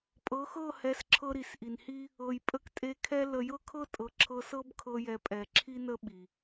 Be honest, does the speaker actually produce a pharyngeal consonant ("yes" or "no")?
no